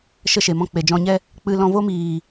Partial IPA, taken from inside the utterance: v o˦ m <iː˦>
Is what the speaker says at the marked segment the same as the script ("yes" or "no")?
no